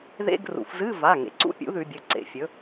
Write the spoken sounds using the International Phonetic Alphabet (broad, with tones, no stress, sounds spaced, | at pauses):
ð ḛ˧˥˧ ɡ r ṵ˩˧ f z ɨ˧˥˧ v a˩˧˩ ŋ ḛ˩˧ ǀ ṵ˧˥˧ pʲ ṵ˨˥ ð ʉ˩˧ bʲ ɵ˩˧˩ ǀ ḛ˩˧˩ fʲ ɵ˨˥